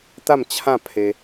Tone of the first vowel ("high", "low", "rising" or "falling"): falling